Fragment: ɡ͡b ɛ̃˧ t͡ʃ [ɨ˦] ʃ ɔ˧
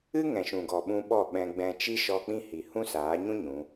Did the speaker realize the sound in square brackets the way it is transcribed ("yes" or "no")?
no